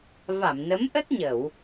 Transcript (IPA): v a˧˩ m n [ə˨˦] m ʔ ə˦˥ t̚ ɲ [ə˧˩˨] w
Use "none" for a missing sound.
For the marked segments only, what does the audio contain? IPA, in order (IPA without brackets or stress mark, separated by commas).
ə˨˦, ə˧˩˨